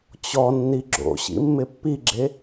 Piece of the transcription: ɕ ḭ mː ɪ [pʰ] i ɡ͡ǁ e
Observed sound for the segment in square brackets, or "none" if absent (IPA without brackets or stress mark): pː